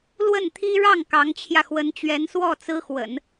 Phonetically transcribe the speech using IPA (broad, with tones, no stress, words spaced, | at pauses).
lwə˥˩nt̪ʰi˥ ɻɑ˥˩ŋ kɑ˧˥ŋt͡ɕʰjä˧xwə˧˥n t͡ɕɥɛ˧˥nswɔ˥˩t͡sɹ̩˥xwə̰˨˩˦n